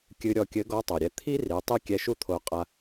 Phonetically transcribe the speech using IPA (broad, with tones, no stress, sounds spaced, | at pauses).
kʲ ɨ˧ ɾʲ ɔ˧ kʲ ɘ˧˥ ɡ ɔ˧˥ tˤ o˩ ɾʲ ɛ˧ t̪ʰ i˥ r i˩˧ tˤ i˥ kʲ ɛ˧˥ ʃ u˥ t̪ʰ o˧ qʼ a˧